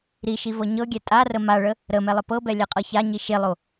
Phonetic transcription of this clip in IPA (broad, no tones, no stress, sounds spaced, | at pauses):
ɾ i ʃ i v ɤ ɲ ɤ ɡʲ ɛ tʼ a r ə m a ɭ ə | ɾ ə m ɛ lˠ ə p ɤ b ɛ lʲ a qʼ ɤ ç a ɲ i ʃ e lˠ o